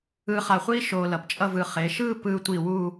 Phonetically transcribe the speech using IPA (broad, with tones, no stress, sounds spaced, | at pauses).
ɯː˧ χ a˧˩ χʷ iː˥ ʃ oː˧ l ʌ˩˧ p t͡ʃʼ ʌ˥˧ v ɯ˧ χ e˩˧ ʃ ɯː˥˧ p ɯː˧ tʷ i˧˩ w u˥˧